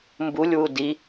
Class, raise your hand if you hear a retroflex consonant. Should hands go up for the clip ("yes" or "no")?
no